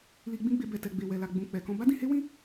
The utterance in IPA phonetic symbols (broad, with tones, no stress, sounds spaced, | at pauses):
l i˧ ɡ͡b ĩ˦ ɡ͡b e˧ b ɛ˨ t ɛ˨ ɡ͡b e˨ w ɛ˨ l a˨ ɡ͡b ũ˨ k͡p ɛ˨ k ɔ̃˧ b a˦ d ĩ˧ h e˦ w ĩ˦